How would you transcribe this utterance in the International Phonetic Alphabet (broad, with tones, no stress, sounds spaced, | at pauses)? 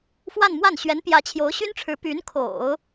f w a˥˧ n m w a˥˩ n ɕ ɥ ɛ˧˥ n p j ä˧˥ t͡ɕʰ j o˧˥ ʊ̯ ɕ y˥ n ʈ͡ʂʰ ɻ̩˧˥ p y˧˥ n kʰ o̰˨˩˦ ʊ̯